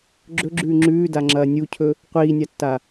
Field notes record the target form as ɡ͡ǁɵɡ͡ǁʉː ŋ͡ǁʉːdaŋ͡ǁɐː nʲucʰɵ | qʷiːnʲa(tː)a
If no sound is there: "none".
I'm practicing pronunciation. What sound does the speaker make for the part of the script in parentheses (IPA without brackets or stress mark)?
tː